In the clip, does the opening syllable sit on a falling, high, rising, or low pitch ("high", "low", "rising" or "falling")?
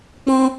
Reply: high